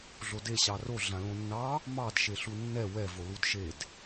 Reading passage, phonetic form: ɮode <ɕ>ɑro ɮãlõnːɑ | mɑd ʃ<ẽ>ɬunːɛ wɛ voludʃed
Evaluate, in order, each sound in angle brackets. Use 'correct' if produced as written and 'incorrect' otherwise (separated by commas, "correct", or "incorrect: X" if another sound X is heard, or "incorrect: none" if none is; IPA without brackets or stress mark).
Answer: correct, incorrect: e